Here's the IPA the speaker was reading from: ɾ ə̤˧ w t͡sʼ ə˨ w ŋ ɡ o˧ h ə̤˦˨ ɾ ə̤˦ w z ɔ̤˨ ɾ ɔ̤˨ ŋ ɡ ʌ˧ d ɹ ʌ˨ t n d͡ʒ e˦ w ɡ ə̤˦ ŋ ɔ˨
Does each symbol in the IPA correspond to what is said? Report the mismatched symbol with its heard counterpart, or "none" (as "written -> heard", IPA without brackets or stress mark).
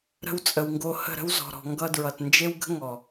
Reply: none